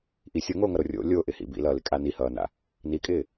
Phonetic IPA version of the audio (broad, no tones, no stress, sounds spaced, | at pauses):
ʔ i sʲ o ŋ oː ŋ ʌ ɾ o rʲ o̰ lʲ o ʔ ɪ h ḭ b ḭ l ʌː l ɪ kʼ a n i h ʌː n a̰ | n i kʼ ɪː